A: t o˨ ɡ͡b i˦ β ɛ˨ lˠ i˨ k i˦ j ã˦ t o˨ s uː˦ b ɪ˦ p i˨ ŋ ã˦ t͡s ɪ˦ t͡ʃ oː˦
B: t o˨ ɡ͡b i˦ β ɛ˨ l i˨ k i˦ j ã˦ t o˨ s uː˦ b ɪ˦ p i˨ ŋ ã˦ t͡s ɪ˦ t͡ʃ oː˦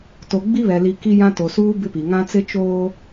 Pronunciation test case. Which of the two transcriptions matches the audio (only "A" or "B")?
B